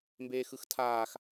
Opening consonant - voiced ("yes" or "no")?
yes